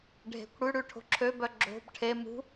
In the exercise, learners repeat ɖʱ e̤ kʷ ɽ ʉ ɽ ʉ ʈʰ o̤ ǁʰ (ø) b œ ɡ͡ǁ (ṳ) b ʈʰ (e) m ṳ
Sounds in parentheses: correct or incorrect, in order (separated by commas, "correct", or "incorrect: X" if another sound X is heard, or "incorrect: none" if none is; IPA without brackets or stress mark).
correct, incorrect: o̤, correct